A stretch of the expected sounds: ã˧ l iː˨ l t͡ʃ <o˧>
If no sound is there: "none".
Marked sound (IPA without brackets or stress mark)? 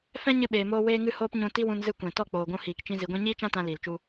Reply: u˧